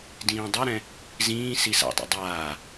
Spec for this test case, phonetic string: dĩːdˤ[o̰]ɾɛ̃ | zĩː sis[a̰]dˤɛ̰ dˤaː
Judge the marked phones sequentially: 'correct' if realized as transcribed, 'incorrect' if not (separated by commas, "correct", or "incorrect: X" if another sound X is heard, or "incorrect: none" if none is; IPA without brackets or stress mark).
incorrect: o, correct